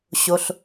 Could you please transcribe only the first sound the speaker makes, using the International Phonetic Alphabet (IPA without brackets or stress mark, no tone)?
ɕ